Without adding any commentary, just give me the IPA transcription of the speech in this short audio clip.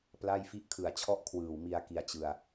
pla˥˩jfi˥˩ʔ kʰɯ˨˩a̯t͡ɕʰɔ˥˩ʔ kʰwɯː˨˩wmi˧a̯ ki˧a̯ t͡ɕɯ˧a̯

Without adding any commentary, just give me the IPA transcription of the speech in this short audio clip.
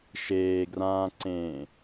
ʃeːɡrãːǀẽː

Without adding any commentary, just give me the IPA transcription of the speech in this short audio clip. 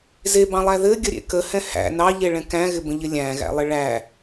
zebɑ̃lˠæ ðɘɡʲəɾʲḛ kəhɛ̃ hæ̰ nɑʎeɭɛ̃ kæ̃ɣɪbə̃ʎɪ lʲæ̃ɣæ̰lˠɪ ɭæ

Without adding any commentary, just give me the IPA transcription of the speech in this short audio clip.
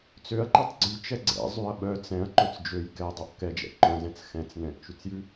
t͡søɐ̯ǃɛtˤ ɡ͡ǀyt͡ʃɛ ɡ͡ǀɛ̰ zˤyɐ̯ɓœ t͡sɛ̃ɐ̯ ǃɵt͡sd͡ʒøj kɛdˤœʔ kɛd͡ʒɛ̰ ǃœ̃zɛ̃t͡s xɛ̃t͡s nɛ̃ʔt͡ʃʉt͡sjʉ

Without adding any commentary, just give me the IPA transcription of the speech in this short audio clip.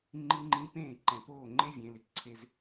ŋ͡ǃi˦ŋ͡ǃĩ˦ pẽː˦˨ǃɛ̃˨poː˦˨ ŋ͡ǃe˦vʲẽ˨˦lɪ˨ ǀʰe˦z

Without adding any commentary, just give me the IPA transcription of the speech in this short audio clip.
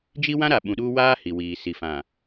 d͡ʒi˦wã˦ɾa˨ ɓũ˨ɗuː˦ waː˦ hi˨wiː˨ si˨fã˨

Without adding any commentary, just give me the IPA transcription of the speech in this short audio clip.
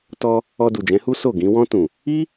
tɔ˧ | ɔ˧du˨d͡ʒɛ̃˨˦hu˦ so˦˨ɡĩ˨˦ wɔ̃˧tũ˨ | i˦

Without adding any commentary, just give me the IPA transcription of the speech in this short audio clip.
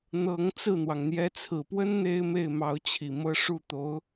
n̪ɤ˧˥ŋ t͡sɹ̩˥˩n̪wɑ˩ŋ n̪jɛ˧˥t͡sʰɹ̩˨˩pwə˥n n̪e˥ɪ̯me˥˩ɪ̯mɑ˧˥ʊ̯ t͡ɕʰi˨˩mɤ˥ ʂu˥˩t̪o˧˥ʊ̯

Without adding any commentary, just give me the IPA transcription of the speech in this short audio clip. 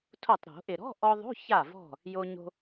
tʰo˧˩tˤɾo̤˨˩˦ ʔɪ˩ɾɔ̤˧˥˧ʔɔ˧ ðˤo̤˧˥˧ ça˧˩vɔ̤˧˩ | jo˧ɲo̤˧

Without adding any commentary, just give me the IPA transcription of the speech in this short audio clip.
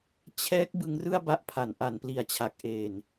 t͡ɕʰɛː˦˥k̚ bɯ˦˥ŋrɯ˥˩a̯ba˦˥ʔpʰa˩˦n ʔa˩˦npli˨˩a̯t͡ɕʰa˨˩k̚ ʔe˧n

